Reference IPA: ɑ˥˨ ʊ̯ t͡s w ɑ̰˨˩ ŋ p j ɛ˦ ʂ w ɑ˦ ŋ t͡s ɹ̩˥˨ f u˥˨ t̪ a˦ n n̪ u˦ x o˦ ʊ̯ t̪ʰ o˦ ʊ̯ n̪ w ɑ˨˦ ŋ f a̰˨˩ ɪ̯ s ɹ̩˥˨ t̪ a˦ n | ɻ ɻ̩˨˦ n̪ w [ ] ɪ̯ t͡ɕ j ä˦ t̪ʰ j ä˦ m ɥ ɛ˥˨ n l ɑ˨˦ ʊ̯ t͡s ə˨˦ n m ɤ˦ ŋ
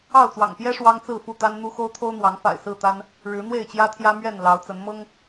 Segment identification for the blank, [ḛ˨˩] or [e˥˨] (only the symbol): e˥˨